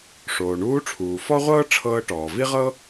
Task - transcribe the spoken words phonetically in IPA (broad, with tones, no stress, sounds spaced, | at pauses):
ʂ oː˩ ɳ uː˧˥ ʈ͡ʂʰ uː˩ f ɔ˥ ʁʷ ɤː˥ ʈ͡ʂʰ ɤː˧ ʈ ɔː˩ v i˥ ʁ ɤ˥